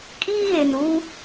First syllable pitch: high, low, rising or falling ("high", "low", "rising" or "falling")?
high